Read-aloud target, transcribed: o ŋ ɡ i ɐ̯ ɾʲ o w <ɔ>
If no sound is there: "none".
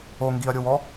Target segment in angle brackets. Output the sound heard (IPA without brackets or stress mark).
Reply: ɔ